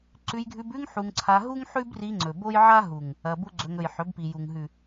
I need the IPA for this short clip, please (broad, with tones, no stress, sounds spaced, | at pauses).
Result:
ǀ ʉ˧ j ɡʱ ʉ˧ b ʉ˦ ŋ ħ u˧ ŋ ǀʰ a˧ ɦ u˦ ŋ ħ ʉ˦ b r i˧ ŋ͡ǀ ɵ˨ b o˦ j ʕ a˦ ɦ u˨ ŋ | ɐ˧ b u˦ ɡ͡ǀ ɵ˧ ŋ ɵ˨ j ħ ɵ˨˦ b p i˨ j u˨ ŋ ɦ ʉ˨